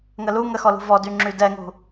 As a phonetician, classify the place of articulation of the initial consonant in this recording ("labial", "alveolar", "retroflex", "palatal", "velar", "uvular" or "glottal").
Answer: velar